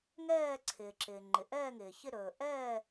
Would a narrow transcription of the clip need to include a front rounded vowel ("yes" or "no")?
no